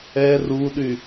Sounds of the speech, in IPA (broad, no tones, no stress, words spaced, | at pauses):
ɛ ruɗy